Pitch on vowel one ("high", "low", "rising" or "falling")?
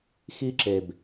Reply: high